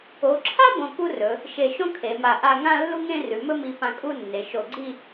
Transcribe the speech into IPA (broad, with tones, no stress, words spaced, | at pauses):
o˩˧ǁʰa˥ bõ˧ku˥rɵ˩˧ | ʃe˧˩ʃõ˥kʰe˩˧ma˧˩ ʔa˥˧ ŋã˥˧lːu˥ŋẽ˥˧ rʉ˩˧mɵ˥mi˧ pã˧kʼu˥˧nːe˩˧ ʃo˧˩ɡ͡ǀi˥˧